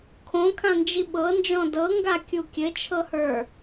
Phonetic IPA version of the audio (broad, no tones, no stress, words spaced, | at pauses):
kʰõkʰãnd͡ʒi ɓɤnd͡ʒɔ̃ dɤŋɡakʲu kʲɘt͡ʃʰɤhə˞